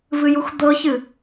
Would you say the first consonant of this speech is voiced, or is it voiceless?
voiced